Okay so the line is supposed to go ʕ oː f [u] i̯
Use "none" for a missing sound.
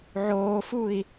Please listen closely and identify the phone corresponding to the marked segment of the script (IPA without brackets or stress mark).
u